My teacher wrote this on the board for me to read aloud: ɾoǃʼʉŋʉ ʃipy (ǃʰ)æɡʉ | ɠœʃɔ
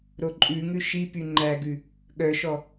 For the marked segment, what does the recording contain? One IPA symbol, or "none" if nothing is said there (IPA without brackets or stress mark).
ŋ͡ǃ